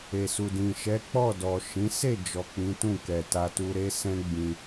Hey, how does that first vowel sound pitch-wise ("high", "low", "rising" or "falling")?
low